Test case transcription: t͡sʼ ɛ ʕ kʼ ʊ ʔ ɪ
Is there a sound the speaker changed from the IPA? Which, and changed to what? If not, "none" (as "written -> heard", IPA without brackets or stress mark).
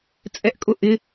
ʕ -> ʔ